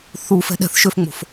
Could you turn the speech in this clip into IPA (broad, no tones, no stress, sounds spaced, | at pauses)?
θ u f ɛ̤ ɗ ɛ̤ θ ʃ ø f ŋ͡m o̤ f